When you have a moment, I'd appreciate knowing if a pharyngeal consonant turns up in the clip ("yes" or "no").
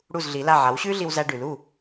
yes